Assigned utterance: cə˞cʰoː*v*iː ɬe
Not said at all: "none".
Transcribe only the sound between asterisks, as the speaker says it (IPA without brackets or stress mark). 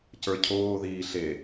ð